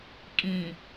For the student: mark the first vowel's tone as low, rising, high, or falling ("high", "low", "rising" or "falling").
low